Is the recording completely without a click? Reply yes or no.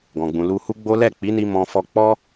yes